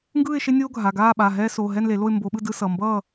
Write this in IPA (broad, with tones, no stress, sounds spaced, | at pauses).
ŋ ɡ ɯː˥˨ ɪ̯ ʃ e˦ nʲ oː˦ ɡʱ a˩˧˩ ɡ aː˥˨ ɓ a˩˧˩ ɦ ɛː˦ s oː˩˧˩ ɦ ɛ˥˨ n l e˨˩˦ l o˥˨ ɪ̯ m b o˨˦ ɓ ɯ˥˨ d ɯ˦ s ʌ˩˧˩ m b ʌː˥˨